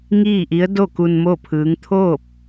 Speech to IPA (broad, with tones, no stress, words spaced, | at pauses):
ŋiː˥˨ʔi˧˥ə̯ do˥˨ku˧n mo˥˨pʰɯː˧˥ŋ t̪ʰoː˥˨p̚